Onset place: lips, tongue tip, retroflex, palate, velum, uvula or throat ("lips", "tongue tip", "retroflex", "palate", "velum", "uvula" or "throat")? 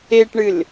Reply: retroflex